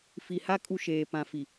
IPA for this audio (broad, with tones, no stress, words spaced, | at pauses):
fi˨ha˦ kʼu˦ʃeː˨ pã˨fi˨